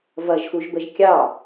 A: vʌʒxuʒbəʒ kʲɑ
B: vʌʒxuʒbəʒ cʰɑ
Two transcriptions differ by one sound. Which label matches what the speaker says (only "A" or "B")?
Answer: A